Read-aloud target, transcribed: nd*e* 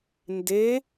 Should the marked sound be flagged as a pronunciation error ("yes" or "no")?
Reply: no